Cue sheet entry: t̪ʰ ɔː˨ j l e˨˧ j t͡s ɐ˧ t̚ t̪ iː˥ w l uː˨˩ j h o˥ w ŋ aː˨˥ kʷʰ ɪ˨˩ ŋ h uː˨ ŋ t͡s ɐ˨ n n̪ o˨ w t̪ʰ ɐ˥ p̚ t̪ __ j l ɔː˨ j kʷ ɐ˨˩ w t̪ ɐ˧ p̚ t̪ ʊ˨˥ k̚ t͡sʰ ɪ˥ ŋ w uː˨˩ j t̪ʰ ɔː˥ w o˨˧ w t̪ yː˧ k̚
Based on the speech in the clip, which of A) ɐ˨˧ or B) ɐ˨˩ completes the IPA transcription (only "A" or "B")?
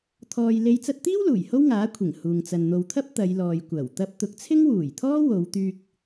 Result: A